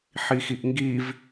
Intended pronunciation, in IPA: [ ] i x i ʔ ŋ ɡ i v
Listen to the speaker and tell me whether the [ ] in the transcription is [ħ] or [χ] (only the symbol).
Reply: ħ